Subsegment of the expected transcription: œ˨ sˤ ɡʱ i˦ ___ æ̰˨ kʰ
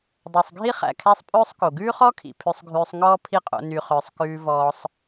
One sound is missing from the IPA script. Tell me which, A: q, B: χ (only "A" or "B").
B